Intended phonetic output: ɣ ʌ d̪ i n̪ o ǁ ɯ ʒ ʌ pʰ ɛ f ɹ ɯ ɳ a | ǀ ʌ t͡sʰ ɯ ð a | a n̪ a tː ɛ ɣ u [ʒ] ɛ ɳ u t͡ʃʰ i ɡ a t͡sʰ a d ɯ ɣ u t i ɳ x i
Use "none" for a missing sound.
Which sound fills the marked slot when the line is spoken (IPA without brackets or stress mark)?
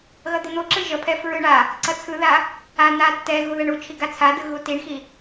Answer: ð